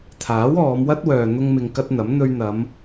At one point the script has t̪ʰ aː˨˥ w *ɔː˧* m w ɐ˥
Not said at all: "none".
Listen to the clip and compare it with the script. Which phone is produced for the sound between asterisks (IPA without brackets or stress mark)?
ɔː˨˧